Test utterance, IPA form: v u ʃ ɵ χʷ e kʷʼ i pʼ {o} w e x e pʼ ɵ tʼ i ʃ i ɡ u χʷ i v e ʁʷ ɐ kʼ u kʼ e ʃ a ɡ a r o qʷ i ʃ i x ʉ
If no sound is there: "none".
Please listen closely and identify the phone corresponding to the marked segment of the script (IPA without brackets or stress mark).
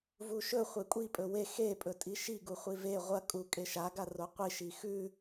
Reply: ɵ